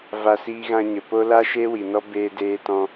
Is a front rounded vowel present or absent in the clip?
absent